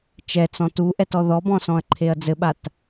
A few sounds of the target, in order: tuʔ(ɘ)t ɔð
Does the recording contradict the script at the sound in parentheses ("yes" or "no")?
yes